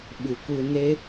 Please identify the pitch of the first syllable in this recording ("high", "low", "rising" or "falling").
low